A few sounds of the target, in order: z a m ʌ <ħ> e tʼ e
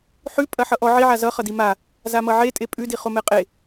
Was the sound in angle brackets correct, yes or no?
no